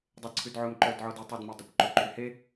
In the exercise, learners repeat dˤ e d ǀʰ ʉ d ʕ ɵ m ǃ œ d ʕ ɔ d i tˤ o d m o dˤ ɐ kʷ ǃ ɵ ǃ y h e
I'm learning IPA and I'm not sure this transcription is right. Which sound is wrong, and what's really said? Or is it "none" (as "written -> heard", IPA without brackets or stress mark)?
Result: ɐ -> ɑ